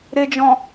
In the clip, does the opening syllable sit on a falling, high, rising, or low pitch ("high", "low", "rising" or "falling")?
low